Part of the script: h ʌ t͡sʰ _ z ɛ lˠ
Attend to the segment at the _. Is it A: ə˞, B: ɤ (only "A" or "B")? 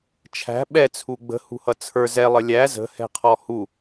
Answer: A